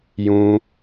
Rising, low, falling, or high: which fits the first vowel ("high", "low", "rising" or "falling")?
high